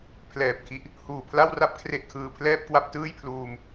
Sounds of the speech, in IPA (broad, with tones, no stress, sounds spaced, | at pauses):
pʰ l ɛː˨˩ p̚ kʰ i˦˥ ʔ | h uː˨˩ pʰ l a˥˩ w r a˥˩ p̚ kʰ r e˥˩ ʔ kʰ ɯː˧ pʰ l ɛː˥˩ p̚ k w a˥˩ p̚ t ɯː˥˩ j pʰ l uː˧ m